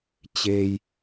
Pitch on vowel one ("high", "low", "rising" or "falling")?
low